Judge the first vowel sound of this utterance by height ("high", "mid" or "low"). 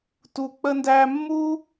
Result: high